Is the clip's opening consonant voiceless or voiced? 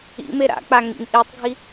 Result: voiced